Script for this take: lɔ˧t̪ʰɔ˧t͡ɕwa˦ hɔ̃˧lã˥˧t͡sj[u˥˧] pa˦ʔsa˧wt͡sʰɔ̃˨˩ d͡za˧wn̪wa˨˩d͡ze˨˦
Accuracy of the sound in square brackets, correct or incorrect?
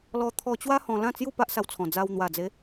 correct